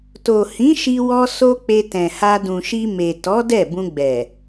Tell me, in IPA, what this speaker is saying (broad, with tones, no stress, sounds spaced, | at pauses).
t o˨ h ĩ˨˦ ʃ i˧ w ɔ˧ s o˦ k͡p e˧ t ɛ̃˨ h a˧ d ũ˨ ʃ i˧ m e˨ t ɔ˨˦ d ɛ˦˨ b ũ˧ ɡ͡b ɛ˨